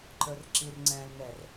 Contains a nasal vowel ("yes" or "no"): yes